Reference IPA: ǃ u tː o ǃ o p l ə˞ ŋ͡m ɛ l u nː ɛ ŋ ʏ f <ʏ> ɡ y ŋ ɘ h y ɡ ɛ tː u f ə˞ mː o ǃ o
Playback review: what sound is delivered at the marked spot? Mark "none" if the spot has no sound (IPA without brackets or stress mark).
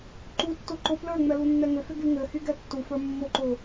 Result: ʏ